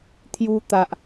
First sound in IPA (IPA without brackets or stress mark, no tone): t̪ʰ